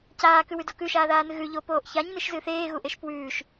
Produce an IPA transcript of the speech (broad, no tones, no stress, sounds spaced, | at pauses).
c aː k ʉ w ʉ d o k ʉ ʃ aː ð aː n ɨ ɣ ʉ ʎ o p oː ʔ ç a ɲ n ɨ ʃ z ɨː θ eː ɣ u ʔ e ʃ p w ʉː ʃ